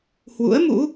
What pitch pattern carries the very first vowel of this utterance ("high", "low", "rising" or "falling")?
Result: rising